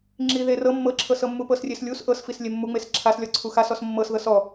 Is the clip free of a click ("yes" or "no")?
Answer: no